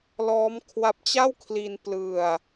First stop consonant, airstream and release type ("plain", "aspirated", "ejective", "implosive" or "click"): aspirated